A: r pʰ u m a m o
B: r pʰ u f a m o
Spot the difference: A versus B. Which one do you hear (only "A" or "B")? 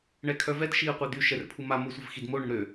A